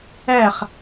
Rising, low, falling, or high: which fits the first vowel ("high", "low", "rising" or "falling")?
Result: falling